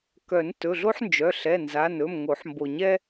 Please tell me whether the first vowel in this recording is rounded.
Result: yes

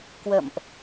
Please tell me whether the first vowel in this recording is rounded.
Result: no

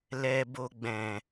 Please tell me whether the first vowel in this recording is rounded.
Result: no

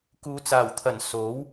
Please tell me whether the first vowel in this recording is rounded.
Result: yes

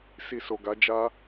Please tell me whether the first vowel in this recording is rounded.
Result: no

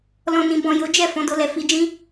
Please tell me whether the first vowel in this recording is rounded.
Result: yes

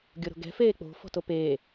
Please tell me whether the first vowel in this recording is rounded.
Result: yes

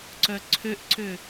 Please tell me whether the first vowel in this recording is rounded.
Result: yes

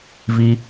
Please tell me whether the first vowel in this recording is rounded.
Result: no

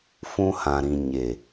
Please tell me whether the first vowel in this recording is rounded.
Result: yes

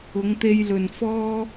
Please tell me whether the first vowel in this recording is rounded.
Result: yes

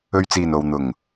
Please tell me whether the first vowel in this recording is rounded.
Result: yes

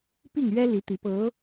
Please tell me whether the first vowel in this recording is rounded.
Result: no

